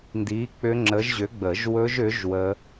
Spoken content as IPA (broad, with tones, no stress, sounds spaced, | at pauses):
n d i˨˥ k͡p ʏ˦˥ ŋ͡ǁ ə˨˥ ʒ ʑ ʏ˨˥ ɡ͡b ə˨˩˦ ʒ w ɵ˦˥ ʒ ʏ˨˥ ʒ w ə˦˥